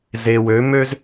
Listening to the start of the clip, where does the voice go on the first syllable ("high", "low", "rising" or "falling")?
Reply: low